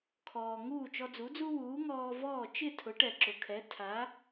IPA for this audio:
kʰ ɔː˩ ŋ uː˥˩ t͡ʃ ɔ˧ d͡z u˩˥ d͡z u˥ w uː˩˥ ŋ ɔː˧ v ɔː˥˩ t͡ʃ ɪ˥˩ tʰ ʊ˩˥ ʈ ɛ˩ ǁ ʊ˩ kʰ ɛ˩˥ tʰ a˩˥

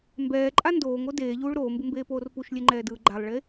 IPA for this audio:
m b ɛː ǃʼ a n d oː ŋ o d eː ʎ uː ɭ ɾ oː m b ɯ m b eː p oː r p u ʃ lʲ e ŋ͡ǃ ɛː d ɯː ɡ͡ǃ a lˠ ɭ e

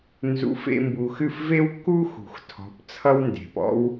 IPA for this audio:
n z ṵ˨˦ f ḛ˧ m b u˨ x ɨ˦˨ f v e˦ w kː u˦ x ṳ˨ x tʰ ɔ̤˨˦ p t͡sʰ ʌ˦ w n d e̤˨ p ɔ̰˦ w

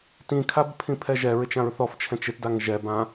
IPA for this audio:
t ĩ kʰ a b pʰ ĩ pʰ ɛ ʒ ɛ ɹ ɪ t͡ʃ ã ɹ θ ɔ f t͡ʃʰ ɛ̃ t͡ʃ ɪ t d a ŋ ʒ ɛ b ã

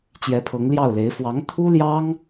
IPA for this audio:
t͡ɕ j ɛ˧˥ pʰ ɤ˧˥ ŋ l j ɑ˥˩ ʊ̯ l e˧˥ ɪ̯ f w ɑ˧˥ ŋ t̪ʰ u˥ l j ɑ˥ ŋ

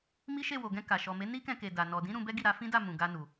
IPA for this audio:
m i˦ ʃ e˦˨ w o˨ ɡ ɛ̃˧ k a˨ ʃ ɔ˨ m e˨˦ n i˦ k ɛ̃˧ k e˨ d a˨ n ɔ˨ d ĩ˨˦ ɾ ũ˧ b ɛ˦ ɡ i˦˨ ɾ a˨˦ f ĩ˦ d a˦˨ m ũ˨ ɡ a˧ n u˨

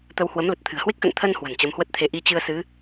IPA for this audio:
t̪ ə˧ w h w ə˨˦ m l ə˨˩ t̚ t̪ʰ ɨ̤˨˩ ə̯ h w e˦˥ k̚ x ə̰˧˨ n t̪ʰ ə˧ n h w ə̤˨˩ n t͡ɕ ə˨˦ m h w ə˦˥ t̚ t̪ʰ e˧ ʔ i˧ t͡ɕ ɨ˧ ə̯ s ɨ˨˦

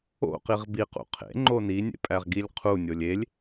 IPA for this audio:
o̰ q i ʁ b i q ṵ qʰ ḛ ŋ͡ǃ o n i nʲ ḛ pʼ æ ʁ ɡ i lʲ qʰ u nʲ o lʲ e lʲ

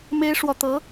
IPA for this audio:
m e˥ ɪ̯ ʂ w ɔ˨ t̪ ɤ˧˥

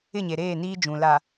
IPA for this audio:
ɪ˦˨ ɲ e˨ ɾ eː˦˨ n iː˦ d͡ʒ ũ˨ l a˨

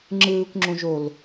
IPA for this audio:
ŋ͡ǁ ɯː kʷ ŋ͡ǁ õ ʒ o l

